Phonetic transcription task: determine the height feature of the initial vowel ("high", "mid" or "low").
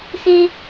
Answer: mid